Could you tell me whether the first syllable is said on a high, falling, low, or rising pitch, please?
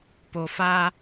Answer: low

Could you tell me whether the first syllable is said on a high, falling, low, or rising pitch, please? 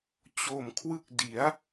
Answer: low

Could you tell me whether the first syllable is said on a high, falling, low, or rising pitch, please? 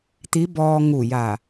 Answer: rising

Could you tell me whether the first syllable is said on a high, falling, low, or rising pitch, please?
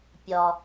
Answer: low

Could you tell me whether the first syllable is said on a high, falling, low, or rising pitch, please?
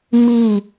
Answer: falling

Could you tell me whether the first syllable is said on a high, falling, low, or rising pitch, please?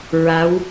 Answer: rising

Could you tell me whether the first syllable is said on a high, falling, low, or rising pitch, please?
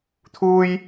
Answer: high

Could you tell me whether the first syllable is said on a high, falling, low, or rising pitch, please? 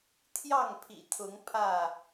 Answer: falling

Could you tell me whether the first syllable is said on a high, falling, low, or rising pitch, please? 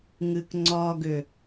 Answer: low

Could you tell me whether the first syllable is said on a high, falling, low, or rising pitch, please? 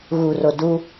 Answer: low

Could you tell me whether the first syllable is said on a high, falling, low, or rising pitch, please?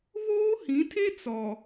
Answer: high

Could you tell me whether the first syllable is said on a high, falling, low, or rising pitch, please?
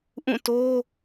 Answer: falling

